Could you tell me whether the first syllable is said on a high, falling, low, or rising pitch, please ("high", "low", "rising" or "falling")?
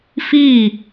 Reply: falling